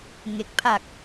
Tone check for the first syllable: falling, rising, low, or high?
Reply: low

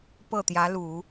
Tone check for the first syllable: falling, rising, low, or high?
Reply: falling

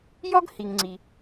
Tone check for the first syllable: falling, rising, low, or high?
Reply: high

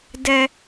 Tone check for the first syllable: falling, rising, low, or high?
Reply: high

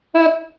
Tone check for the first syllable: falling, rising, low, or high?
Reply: high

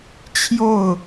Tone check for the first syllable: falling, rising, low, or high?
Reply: falling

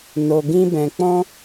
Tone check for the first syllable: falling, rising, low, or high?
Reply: low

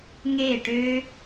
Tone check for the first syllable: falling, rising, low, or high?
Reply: falling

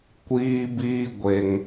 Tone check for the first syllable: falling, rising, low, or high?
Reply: high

